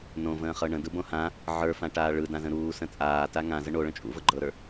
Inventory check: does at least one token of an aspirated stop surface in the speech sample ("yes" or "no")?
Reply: no